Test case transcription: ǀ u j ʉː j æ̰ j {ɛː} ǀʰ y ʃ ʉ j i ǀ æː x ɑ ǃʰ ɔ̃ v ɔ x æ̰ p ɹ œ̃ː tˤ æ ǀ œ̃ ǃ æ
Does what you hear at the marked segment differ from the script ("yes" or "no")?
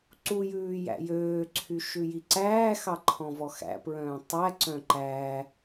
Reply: yes